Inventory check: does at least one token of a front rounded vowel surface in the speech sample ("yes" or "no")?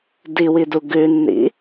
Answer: no